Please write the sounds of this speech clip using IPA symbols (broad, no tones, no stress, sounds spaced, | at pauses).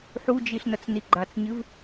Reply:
ħ u d͡ʒ i ɬ n ɐ t͡s n i ɡ͡ǃ a t͡s ɲ ɨ v